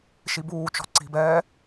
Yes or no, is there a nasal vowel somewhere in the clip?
no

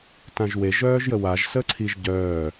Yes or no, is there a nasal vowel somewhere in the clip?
yes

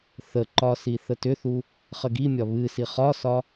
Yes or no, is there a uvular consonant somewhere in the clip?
yes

